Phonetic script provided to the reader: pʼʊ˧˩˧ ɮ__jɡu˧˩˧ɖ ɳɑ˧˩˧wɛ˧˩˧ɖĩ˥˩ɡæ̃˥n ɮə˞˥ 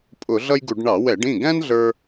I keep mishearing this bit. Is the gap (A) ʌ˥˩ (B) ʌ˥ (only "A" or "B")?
B